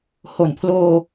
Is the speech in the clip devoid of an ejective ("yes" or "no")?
yes